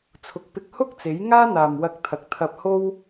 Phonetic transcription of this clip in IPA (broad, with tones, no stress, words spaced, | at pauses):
t͡sʰʊ˨˥k̚pɪ˧k̚ hʊ˥k̚t͡se˨˥j ŋaː˥n̪aː˨mwɐ˧k̚t̪ʰɐ˨k̚ t̪ʰɐ˧p̚ho˥w